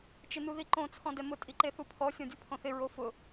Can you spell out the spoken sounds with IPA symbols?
t͡ʃ ɪ n u ð i ǃ õ t͡sʰ ɔ̃ d ɛ m ʊ tʼ i ǃ e θ u pʰ ɔ sʲ ɔ̃ dʲ u pʰ õ θ ɪ ɹ o f ʊ

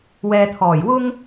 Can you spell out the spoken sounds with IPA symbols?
w ɛː˨ t̪ʰ ɔː˨˩ j w ʊ˥ ŋ

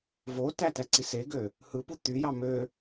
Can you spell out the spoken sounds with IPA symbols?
v o t æ t æ ǀ i s e ɡ ø | h ɯ p u t̪ y j ɑ m ø

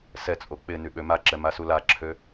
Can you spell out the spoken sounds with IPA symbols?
s ɛ t͡sʼ o k͡p ɪ n y ɓ ø m a ǁ ɛ m a s u l a ǁʰ ø

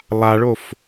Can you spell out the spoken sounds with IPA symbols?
lˠ a ɭ o f

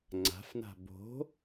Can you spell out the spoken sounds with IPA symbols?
ŋ͡ǀ a̤ f n a̤ b o̤

